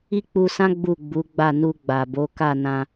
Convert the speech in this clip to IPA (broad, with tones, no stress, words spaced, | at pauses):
i˦k͡pu˧sã˦ ɡ͡bu˦˨ɡ͡bu˨˦ɡ͡ba˦˨ nu˧ɡ͡ba˨bo˨˦ ka˦˨nã˧